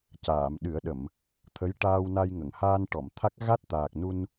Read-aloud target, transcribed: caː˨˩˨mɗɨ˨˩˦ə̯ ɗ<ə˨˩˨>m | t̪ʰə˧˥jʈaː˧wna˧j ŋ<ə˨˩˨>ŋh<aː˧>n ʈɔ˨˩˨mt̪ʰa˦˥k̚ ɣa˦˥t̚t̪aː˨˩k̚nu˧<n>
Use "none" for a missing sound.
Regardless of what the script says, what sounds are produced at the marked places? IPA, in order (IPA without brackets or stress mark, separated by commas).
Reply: ə˨˩˨, ə˨˩˨, aː˧, n